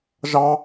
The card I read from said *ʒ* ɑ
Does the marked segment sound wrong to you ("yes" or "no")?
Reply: no